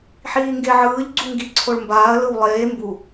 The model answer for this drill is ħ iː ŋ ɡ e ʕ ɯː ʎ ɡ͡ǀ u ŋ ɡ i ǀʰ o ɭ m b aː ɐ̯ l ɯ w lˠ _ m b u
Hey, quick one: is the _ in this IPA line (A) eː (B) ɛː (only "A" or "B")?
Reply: A